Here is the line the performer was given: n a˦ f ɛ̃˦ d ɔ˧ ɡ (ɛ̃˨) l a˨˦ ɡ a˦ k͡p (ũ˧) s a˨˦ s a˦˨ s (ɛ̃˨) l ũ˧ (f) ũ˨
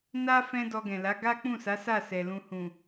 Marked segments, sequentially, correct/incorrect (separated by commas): correct, incorrect, incorrect, incorrect